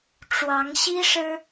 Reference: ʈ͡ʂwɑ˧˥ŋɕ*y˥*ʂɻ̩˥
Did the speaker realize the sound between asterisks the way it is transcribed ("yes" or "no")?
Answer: no